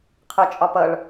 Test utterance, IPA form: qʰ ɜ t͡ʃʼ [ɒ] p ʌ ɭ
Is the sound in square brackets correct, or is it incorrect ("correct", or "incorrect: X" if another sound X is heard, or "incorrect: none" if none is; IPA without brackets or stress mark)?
correct